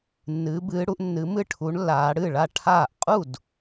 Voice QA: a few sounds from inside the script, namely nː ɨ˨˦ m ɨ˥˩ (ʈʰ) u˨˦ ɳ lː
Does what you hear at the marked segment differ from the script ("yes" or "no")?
no